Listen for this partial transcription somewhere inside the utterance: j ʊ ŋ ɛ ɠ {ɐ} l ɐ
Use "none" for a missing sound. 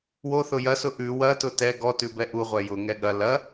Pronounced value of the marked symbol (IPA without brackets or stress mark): ɐ